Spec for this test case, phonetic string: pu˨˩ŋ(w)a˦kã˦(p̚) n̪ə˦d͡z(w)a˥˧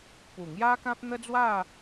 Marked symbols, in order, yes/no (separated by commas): no, yes, yes